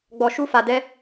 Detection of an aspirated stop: absent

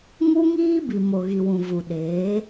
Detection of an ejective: absent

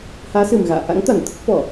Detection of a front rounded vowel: absent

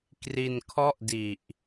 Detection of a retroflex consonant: absent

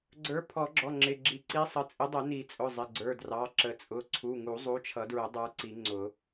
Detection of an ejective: present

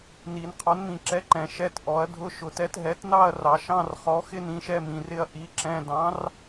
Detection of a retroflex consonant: absent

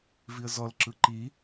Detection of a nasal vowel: absent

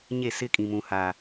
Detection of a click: absent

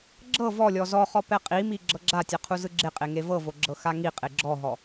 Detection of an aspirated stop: present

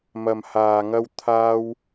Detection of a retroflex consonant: absent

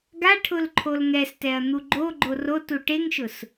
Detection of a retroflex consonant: present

